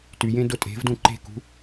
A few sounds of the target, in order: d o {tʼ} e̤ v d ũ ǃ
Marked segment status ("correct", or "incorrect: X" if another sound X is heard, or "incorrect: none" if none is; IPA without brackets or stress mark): correct